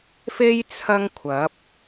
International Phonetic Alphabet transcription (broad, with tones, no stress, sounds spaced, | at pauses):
f e˥ j t͡sʰ ɐ˥ ŋ kʷʰ ɐ˨˥ p̚